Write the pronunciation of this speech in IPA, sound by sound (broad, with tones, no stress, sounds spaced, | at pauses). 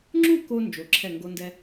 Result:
ŋ͡ǁ u˥˧ k o˧ n d͡ʒ o˧ ǁʰ ɛ˥˧ ŋ ɡ o˥ n d ɛ˥